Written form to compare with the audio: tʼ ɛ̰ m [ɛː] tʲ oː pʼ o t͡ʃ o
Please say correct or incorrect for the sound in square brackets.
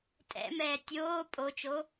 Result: correct